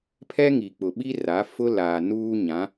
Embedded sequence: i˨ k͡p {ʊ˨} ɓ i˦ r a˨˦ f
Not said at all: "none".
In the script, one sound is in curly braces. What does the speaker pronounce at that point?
ʊ˨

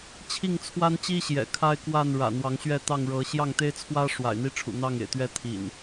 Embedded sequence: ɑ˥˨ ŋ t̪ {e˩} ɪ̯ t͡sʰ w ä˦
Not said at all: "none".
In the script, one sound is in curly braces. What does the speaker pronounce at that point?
e˦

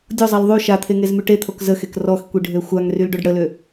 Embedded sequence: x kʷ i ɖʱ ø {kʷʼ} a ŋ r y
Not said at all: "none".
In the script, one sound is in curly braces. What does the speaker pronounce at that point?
xʷ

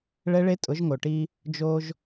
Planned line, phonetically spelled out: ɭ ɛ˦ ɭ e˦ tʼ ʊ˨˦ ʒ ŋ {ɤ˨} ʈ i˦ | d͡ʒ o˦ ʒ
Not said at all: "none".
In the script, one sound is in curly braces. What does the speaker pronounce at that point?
o˨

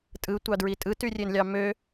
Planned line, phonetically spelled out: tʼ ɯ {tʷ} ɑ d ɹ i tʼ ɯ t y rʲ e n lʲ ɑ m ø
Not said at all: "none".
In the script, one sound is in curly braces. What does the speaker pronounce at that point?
tʷ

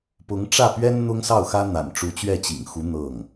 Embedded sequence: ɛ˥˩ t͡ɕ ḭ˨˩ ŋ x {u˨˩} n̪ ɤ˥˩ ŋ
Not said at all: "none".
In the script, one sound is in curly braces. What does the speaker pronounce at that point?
u˧˥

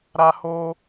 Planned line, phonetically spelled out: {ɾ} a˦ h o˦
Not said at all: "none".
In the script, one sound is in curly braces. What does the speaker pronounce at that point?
ɾ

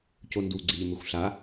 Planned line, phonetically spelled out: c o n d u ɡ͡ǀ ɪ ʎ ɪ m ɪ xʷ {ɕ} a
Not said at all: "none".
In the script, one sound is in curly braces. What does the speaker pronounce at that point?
ɬ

